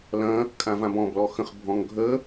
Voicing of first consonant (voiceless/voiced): voiced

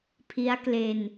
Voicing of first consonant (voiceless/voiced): voiceless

